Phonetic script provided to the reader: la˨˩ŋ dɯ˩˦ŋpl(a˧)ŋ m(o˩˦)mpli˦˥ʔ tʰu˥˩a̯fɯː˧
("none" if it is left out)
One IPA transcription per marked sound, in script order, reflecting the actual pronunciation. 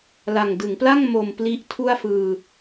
a˥˩, o˧

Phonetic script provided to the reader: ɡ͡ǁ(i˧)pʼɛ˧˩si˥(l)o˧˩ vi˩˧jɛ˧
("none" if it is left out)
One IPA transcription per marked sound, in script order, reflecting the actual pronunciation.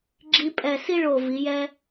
i˧, ɭ

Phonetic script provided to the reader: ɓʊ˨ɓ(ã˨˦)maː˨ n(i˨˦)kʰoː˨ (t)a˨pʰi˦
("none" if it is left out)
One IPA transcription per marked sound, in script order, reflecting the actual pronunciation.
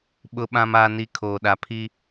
ã˨, i˨˦, ɗ

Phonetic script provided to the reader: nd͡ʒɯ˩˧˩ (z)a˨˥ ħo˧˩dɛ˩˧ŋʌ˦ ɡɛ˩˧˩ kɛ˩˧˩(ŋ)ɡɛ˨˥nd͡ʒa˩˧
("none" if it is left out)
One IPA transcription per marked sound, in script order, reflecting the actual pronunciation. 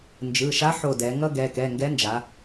ʃ, ŋ

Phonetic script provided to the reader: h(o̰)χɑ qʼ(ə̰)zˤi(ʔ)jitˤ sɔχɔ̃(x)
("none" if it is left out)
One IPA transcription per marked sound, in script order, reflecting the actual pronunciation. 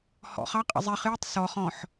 ɔ̰, ə̰, χ, ħ

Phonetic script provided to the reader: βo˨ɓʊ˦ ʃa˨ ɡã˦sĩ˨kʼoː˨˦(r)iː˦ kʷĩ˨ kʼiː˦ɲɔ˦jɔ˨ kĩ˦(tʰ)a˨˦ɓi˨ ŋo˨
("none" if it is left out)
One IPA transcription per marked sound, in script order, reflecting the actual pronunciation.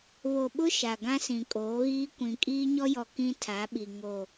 ɣ, tʰ

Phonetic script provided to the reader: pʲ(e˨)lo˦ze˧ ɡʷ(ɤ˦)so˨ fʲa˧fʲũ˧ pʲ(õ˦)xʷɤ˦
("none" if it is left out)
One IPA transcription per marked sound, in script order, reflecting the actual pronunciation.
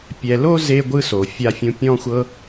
ɛ˨, ɯ˦, ɔ̃˦

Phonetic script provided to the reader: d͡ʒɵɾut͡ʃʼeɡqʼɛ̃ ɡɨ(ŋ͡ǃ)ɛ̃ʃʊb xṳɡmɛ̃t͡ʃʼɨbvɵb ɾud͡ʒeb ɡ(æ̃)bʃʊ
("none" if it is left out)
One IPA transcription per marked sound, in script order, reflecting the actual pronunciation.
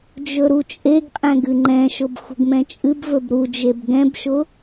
ŋ͡ǃ, ɛ̃

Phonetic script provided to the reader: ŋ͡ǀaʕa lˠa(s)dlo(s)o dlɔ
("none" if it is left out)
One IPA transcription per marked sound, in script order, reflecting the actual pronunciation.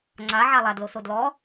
none, s

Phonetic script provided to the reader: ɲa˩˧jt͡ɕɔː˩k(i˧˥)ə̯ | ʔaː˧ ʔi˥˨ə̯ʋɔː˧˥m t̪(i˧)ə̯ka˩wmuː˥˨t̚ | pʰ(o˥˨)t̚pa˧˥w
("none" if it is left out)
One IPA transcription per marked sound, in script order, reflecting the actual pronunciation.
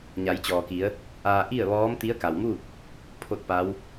i˩˧, i˧˥, o˥˨

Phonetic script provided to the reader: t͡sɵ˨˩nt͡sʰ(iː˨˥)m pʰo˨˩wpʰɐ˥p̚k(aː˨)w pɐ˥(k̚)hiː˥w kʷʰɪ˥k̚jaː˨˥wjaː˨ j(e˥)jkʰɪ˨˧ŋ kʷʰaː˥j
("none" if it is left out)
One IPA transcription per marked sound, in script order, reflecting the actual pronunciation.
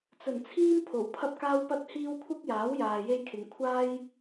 iː˥, aː˥, t̚, e˥

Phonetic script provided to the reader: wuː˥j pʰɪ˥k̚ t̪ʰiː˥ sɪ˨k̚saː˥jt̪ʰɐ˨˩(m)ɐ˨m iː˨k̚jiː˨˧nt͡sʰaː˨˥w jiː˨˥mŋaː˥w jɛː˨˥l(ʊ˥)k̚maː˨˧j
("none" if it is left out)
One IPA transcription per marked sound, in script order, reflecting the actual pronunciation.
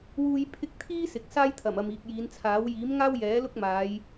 m, ʊ˥

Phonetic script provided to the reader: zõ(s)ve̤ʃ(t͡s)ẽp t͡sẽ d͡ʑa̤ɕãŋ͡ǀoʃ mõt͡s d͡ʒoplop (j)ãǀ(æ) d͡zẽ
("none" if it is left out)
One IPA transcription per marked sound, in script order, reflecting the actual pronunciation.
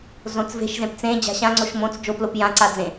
t͡s, z, j, a

